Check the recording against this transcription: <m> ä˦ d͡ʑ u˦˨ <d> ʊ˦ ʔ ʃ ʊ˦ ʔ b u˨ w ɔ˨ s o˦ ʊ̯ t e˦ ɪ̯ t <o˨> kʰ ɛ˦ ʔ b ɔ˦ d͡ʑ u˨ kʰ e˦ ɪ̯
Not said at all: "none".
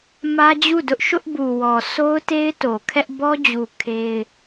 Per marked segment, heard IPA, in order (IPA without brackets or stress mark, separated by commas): m, d, o˨